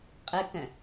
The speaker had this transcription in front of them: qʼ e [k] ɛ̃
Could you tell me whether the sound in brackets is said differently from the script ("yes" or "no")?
no